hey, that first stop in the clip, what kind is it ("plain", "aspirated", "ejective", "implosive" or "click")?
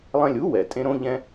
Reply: ejective